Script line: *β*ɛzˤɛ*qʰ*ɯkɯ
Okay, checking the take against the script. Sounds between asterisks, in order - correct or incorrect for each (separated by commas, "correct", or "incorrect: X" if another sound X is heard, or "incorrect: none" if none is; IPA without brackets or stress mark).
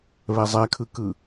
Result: correct, incorrect: kʰ